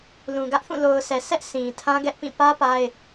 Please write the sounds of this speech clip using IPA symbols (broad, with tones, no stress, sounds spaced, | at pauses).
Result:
l ũ˨ ɡ ä˦ ʔ θ ũ˦˨ l o˨ ʊ̯ s ɛ˨ sʰ ɛ˦ ʔ s ĩ˨ tʰ ã˦ ɡ ɛ˦ ʔ p ĩ˦˨ p ä˦ p a˦ ɪ̯